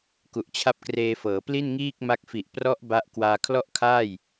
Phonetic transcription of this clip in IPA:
k u˨˩ ʔ t͡ɕʰ a˦˥ p̚ k r eː˧ f ɤː˩˦ p l i˥˩ n ŋ iː˥˩ k̚ m a˦˥ k̚ f i˨˩ ʔ p r ɔ˦˥ ʔ b a˦˥ ʔ k w aː˧ kʰ l ɔ˥˩ ʔ kʰ aː˥˩ j

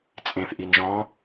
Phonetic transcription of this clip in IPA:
t͡sʼ ẽ θ ʔ i n ʒ ɔ̃

